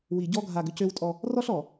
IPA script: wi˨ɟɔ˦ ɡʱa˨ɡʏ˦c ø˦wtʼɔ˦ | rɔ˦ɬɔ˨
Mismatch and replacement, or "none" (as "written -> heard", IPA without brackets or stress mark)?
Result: none